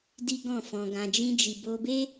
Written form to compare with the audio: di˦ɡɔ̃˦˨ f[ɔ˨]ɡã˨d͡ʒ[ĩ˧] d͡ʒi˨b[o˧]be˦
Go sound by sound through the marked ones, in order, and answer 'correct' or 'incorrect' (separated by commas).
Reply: incorrect, correct, correct